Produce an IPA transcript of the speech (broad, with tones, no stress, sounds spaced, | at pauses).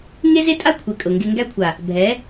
ŋ e˦ z e˦ tʼ a˦ kʷʰ e˨ kʼ ɤ˨ ŋ ɡ e˧ ŋ ɡ æ˧ kʷʰ a˨ | bʱ ɛ˨˦